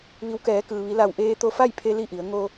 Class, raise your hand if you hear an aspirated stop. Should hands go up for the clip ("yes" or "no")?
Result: yes